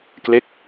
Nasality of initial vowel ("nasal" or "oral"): oral